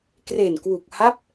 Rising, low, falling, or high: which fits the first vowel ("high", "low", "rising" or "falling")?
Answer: low